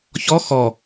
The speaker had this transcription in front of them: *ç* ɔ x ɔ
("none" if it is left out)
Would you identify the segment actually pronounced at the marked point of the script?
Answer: ç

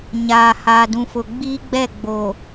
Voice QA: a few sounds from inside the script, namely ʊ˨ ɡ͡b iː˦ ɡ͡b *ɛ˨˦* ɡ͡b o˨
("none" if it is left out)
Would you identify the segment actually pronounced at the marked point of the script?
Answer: ɛ˦˨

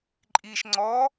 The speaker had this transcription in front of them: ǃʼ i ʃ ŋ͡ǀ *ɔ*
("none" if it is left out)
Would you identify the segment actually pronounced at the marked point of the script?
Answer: ɔ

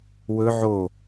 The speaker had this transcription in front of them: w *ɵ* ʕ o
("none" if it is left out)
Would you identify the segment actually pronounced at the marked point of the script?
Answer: ɵ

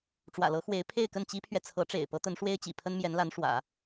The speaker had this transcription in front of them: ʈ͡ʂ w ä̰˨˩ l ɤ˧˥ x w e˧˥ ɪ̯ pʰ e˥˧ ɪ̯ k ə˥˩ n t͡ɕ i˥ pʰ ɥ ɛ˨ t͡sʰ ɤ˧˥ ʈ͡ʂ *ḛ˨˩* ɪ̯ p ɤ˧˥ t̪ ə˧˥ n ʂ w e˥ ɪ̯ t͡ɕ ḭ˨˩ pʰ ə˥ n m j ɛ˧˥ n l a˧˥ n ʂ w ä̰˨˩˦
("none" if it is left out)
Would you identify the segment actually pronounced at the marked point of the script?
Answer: ḛ˨˩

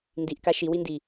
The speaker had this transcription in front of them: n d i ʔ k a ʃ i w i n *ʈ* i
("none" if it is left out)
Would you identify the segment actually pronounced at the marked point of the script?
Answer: d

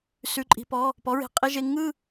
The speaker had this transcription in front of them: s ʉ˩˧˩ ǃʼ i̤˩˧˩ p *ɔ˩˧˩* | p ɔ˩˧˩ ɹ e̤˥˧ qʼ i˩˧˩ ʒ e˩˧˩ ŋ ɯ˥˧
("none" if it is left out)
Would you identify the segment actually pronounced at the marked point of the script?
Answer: ɔ˩˧˩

